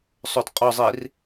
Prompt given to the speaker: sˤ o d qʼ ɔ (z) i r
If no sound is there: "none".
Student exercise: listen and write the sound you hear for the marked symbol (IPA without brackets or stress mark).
zˤ